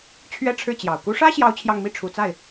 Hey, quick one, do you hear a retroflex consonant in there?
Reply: yes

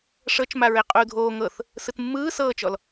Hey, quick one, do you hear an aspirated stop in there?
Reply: no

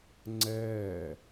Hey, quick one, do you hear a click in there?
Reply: yes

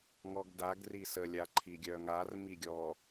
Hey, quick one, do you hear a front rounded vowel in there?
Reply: yes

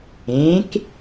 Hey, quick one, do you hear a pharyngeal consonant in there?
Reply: no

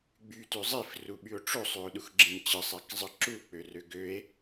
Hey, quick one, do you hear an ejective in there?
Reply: no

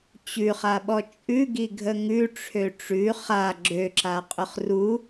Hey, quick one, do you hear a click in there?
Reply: yes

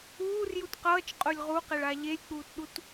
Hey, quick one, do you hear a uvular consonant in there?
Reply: yes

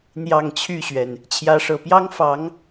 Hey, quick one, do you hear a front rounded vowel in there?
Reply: yes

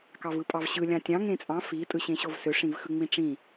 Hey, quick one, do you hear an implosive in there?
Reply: no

